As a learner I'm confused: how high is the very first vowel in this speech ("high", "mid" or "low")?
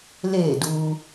mid